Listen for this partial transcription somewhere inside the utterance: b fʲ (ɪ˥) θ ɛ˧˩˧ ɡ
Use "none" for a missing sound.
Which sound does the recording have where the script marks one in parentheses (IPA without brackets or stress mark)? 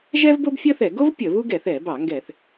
ə˥